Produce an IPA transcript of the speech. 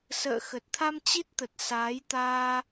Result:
s ə̰ː˧˨ x ə˨˩ t̚ t̪ʰ a˧ m t͡ɕ i˦˥ t̚ t̪ ə˨˩ t̚ s aː˨˦ j t̪ aː˧

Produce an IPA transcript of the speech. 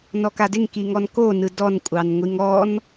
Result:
n ɔ k a d ɪ ŋ k i ŋ ɔ n k o n ɯ d ɔ n kʷʼ ɑ n ŋʷ i ŋ ɔ n

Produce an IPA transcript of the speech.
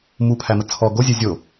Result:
m u pʰ æ m ə t͡sʰ ɔ ɡ o zʲ e zʲ o

